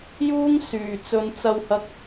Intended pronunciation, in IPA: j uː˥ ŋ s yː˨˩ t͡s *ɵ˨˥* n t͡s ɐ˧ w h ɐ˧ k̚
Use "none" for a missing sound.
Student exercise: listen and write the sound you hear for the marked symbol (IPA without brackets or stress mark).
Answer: ɵ˨˧